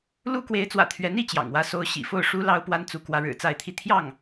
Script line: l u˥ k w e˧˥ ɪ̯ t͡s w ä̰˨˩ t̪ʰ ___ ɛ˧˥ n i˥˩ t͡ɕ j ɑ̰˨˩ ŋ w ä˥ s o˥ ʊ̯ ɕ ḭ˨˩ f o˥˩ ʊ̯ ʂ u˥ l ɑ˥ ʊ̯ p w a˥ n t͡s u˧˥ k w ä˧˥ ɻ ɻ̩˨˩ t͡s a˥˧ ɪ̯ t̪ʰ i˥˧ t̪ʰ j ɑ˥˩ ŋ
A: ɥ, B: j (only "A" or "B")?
A